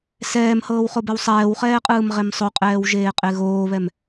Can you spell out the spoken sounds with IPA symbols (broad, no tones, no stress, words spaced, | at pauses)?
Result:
sɛːmhɤːwχobɛw sˤɛːwχɛːqʼɯːmʁem sˤoqʼɛːwʒeːqʼe ɣoːβɛm